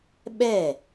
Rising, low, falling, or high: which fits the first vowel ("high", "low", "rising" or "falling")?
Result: falling